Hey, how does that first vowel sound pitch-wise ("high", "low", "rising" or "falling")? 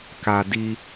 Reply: low